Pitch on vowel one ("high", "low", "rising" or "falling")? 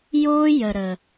high